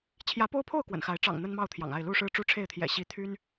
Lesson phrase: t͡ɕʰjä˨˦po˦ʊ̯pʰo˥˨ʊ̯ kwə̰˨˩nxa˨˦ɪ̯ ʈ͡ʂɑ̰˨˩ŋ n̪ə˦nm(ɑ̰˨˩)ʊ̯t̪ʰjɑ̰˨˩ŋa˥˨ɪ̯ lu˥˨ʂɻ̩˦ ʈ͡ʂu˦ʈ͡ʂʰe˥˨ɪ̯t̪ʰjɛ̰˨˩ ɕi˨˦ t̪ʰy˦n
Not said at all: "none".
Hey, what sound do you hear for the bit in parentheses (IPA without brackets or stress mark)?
ɑ˥˨